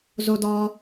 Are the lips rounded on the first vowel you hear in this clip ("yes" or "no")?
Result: yes